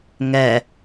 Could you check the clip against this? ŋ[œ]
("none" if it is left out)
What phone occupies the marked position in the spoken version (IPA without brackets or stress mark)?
ɛ